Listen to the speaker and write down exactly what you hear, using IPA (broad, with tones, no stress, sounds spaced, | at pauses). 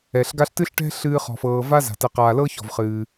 ɛ˩ ɬ ɡ a˦ ɬ t ɨː˥ ɬ ʈ ɛ̤˥ ɬ ɨː˦ χ ɔ̤˨ f ɤː˨ v a˥ z a̤˩ t ɛ˨ q aː˨ l ɤ˥ ç ɔ̤˩ v χ ɨː˩